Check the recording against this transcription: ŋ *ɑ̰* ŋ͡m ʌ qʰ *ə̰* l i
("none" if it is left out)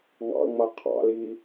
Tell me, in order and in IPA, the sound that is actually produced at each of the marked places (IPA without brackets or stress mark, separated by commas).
ɑ̰, ɑ̰